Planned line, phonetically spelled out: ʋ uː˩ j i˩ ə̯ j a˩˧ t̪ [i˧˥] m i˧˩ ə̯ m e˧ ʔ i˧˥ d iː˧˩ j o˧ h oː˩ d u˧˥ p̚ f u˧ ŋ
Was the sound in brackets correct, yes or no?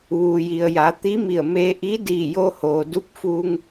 yes